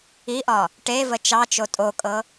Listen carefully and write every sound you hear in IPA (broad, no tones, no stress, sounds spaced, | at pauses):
i ʔ ɒ | ʈ e v ə t͡ʃ ɑ t͡ʃ o tʼ o kʼ ɤ